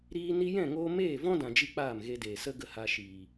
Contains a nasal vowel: yes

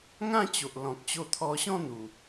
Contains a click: no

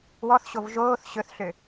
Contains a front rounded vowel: yes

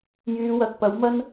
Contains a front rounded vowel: yes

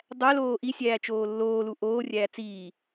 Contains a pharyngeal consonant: no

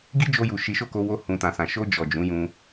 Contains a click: no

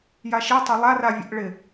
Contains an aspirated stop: no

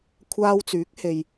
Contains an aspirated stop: yes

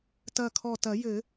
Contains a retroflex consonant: no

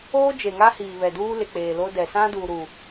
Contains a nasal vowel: yes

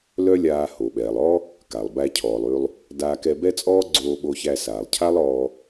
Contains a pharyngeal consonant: no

